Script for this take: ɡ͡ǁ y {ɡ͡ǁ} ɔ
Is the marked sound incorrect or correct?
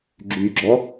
correct